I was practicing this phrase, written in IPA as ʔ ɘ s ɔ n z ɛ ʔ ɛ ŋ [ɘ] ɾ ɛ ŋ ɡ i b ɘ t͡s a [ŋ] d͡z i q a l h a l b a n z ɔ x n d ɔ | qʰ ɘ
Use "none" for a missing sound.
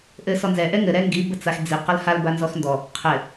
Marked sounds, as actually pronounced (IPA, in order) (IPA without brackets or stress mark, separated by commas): ɘ, x